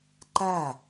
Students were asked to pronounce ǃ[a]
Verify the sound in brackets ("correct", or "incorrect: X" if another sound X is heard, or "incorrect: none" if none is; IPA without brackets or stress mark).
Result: correct